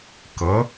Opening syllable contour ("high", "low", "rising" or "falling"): rising